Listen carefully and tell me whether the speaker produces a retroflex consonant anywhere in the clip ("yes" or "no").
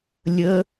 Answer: no